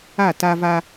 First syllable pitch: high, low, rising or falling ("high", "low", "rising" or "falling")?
falling